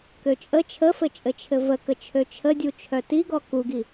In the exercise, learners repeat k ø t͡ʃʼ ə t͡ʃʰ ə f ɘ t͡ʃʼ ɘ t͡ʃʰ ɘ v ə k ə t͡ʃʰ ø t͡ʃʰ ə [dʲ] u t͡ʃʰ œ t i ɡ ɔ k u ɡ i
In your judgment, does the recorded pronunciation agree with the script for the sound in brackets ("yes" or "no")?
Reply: yes